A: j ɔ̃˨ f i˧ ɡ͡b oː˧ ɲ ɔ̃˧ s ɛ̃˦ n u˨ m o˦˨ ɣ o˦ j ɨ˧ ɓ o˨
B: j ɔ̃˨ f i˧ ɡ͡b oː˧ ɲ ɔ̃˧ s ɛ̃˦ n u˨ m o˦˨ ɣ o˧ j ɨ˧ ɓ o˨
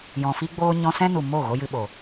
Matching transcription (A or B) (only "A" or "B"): B